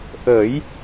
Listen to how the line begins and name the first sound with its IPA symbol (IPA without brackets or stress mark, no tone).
ʔ